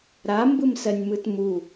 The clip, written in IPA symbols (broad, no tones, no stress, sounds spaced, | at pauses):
ɾ a m b ɯ m s ɜ nʲ m ɯ t m u